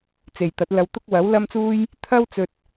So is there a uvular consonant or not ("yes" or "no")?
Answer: no